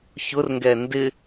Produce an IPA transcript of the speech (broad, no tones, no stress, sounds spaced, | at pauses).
ç ʊ r ŋ ɡ ɛ n d ɪ